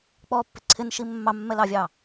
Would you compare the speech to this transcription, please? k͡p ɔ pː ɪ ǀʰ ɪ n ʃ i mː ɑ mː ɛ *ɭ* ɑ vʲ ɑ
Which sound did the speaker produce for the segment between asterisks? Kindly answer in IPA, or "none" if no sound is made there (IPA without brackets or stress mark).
l